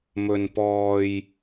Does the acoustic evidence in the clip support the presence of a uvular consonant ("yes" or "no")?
no